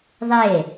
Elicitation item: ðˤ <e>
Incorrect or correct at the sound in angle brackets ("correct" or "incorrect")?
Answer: correct